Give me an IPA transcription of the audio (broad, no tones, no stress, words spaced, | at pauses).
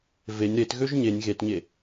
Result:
venʲ ɾetɣøʒ ɲenʲ ɣetɲe